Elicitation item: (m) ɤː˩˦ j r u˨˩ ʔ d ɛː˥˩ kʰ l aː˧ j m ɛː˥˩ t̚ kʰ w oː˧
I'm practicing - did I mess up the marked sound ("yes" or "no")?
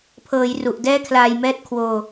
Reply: yes